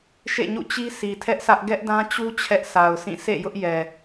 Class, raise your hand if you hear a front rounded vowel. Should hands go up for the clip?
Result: no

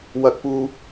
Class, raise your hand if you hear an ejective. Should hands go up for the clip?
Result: no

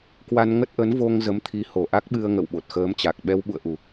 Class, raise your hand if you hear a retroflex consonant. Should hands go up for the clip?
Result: no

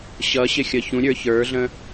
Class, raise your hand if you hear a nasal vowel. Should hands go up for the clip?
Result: yes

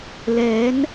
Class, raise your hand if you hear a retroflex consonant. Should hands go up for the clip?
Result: no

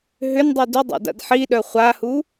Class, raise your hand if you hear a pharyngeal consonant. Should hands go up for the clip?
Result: yes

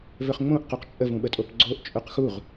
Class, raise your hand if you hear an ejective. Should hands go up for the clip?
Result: yes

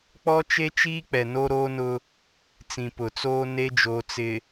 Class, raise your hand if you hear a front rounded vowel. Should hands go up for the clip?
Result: no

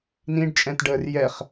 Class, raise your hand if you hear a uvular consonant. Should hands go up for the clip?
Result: yes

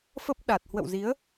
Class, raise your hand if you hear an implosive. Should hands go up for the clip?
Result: yes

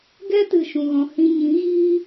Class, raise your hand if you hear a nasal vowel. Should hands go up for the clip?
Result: yes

